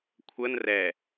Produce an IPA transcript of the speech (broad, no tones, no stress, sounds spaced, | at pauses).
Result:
kʷʰ ə n r ɛ